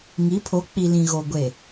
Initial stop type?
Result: aspirated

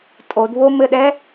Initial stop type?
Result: ejective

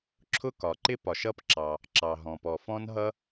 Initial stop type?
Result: click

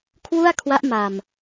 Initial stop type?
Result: aspirated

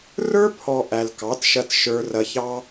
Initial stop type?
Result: aspirated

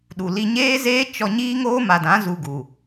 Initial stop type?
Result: implosive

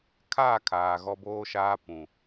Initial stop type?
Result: aspirated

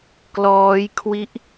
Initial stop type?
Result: plain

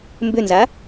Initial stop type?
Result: plain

